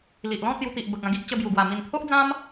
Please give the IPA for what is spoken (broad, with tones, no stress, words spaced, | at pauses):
li˨ʔlɔ̃˥˧t͡sju˧t̪i˨ʔ bə˨k̚ã˧ ɡi˦ʔ t͡ɕə˧bju˨˩ɡwa˨˩ mi˨˩nt̪ʰo˦ʔd͡zã˦m